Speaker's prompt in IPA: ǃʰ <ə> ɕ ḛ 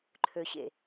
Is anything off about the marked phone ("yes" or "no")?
yes